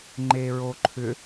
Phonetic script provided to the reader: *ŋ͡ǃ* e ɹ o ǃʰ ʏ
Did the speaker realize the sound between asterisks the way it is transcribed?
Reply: yes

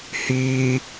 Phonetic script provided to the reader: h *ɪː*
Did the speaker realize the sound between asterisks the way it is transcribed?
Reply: no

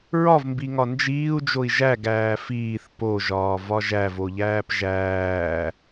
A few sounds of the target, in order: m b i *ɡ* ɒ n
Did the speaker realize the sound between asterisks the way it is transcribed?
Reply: no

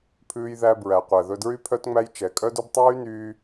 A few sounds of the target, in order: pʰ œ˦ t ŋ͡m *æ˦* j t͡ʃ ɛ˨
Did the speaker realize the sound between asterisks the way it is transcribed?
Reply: yes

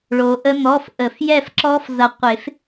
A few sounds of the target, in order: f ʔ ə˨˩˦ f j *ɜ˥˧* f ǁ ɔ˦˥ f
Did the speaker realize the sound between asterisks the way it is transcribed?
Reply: no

